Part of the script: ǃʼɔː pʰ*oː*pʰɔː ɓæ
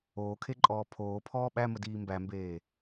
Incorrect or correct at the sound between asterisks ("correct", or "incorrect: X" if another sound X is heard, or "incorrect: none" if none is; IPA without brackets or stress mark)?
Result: correct